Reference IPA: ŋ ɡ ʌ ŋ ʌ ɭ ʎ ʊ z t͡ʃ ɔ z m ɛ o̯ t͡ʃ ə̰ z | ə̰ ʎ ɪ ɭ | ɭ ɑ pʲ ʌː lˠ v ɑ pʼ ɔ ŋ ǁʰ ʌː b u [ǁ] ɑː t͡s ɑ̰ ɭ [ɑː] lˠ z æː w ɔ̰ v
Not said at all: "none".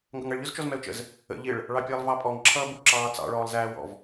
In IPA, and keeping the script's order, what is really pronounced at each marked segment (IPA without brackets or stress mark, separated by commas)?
ǁ, ɔː